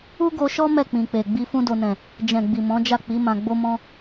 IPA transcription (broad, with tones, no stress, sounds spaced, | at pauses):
u˦ ɡ o˧ ʃ ɔ˦ m ɛ˦˨ k͡p ĩ˨ k͡p e˨ ɡ͡b i˧ f ũ˦ d o˧ n ɛ̃˨ | d͡ʒ ɛ̃˨ ɡ͡b i˨ m ɔ̃˨˦ d͡ʒ a˦˨ k͡p i˨˦ m ã˧ ɡ͡b o˦ m ɔ̃˦